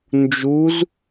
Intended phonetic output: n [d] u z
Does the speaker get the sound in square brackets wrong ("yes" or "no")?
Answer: yes